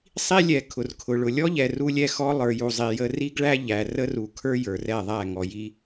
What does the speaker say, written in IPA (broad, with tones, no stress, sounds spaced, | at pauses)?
sˤ i˦ lʲ ɛ˨ kʰ ʊ˨ r kʰ ʊ˨ ɭ ʊ˨ lʲ ɔ˦ ʎ ɛ˨ r u˦ lʲ ɛ˦ x ɔ˦ lˠ ə˞˨ j u˨ zˤ i˨ j ə˦ r i˦ ɡ ɭ æ˦ ʎ æ˨ r ə˦ r u˨ kʰ ə˞˦ j ə˞˨ r ɛ˦˨ ðˤ æ˦˨ ŋ ɔ˨ j i˦